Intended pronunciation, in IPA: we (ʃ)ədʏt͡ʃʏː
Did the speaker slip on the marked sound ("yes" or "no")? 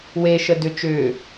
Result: no